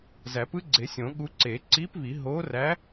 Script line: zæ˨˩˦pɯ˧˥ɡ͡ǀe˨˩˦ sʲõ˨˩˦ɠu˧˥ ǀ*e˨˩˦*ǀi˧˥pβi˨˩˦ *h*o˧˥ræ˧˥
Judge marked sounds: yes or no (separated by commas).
yes, no